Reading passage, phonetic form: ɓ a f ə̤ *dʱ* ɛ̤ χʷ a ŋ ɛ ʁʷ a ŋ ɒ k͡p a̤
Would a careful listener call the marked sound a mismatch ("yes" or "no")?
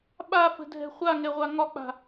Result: no